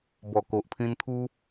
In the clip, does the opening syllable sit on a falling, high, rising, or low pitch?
low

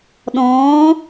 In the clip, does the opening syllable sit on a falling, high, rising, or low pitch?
rising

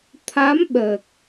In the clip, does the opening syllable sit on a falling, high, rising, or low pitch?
rising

